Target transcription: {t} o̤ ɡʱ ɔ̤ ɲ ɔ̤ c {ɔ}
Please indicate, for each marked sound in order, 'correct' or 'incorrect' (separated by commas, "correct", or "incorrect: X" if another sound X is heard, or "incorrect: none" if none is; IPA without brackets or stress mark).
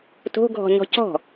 correct, incorrect: ɔ̤